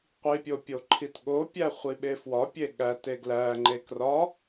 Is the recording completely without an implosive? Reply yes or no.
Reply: no